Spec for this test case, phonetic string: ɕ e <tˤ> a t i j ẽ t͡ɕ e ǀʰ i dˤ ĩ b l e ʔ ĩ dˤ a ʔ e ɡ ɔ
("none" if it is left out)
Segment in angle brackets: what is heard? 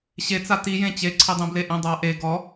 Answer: t͡s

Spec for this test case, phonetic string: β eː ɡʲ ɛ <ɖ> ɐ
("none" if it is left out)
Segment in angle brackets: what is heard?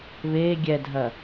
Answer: dʱ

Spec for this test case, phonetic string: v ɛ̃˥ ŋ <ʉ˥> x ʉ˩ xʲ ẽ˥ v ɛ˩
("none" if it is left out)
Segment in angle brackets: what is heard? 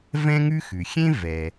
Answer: ʉ˥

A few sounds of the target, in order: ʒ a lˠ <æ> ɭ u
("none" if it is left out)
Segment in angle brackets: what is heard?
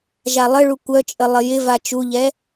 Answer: ə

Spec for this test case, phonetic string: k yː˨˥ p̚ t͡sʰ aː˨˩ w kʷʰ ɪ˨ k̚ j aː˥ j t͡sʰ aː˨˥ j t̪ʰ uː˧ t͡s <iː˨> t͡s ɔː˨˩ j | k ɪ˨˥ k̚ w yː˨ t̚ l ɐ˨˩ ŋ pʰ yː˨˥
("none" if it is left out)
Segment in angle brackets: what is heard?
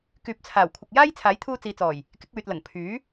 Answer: iː˨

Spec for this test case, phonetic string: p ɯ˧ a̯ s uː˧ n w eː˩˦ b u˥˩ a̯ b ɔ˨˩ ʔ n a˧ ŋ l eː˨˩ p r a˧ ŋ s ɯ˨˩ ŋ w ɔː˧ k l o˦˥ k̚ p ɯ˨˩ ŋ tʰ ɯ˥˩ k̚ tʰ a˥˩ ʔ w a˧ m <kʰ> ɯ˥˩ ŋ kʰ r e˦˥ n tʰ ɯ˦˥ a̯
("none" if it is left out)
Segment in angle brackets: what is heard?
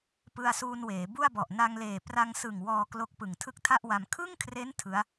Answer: kʰ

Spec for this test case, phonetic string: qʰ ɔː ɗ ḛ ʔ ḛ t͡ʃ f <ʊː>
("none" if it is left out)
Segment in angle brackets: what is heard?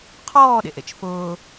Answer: ʊː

